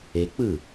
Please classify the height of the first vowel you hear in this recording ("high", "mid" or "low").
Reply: mid